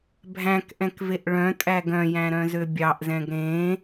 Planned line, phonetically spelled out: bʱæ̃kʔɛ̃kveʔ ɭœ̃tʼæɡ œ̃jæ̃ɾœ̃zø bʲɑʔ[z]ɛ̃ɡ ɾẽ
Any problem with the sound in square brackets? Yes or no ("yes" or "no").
no